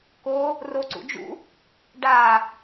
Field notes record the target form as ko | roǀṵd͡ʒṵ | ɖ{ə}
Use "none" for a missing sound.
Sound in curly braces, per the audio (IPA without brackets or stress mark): a